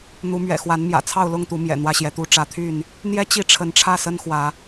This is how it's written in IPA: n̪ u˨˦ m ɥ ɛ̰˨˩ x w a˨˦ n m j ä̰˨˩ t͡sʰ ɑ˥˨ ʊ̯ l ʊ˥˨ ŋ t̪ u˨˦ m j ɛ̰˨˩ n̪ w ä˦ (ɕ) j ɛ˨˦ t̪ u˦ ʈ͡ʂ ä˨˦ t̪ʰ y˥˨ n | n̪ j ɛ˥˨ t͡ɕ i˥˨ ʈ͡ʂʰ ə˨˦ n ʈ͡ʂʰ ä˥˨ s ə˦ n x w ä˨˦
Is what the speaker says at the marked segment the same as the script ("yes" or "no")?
yes